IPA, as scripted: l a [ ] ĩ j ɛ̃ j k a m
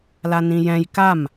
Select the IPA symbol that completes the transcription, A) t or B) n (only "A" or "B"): B